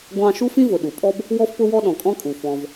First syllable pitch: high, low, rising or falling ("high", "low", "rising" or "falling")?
high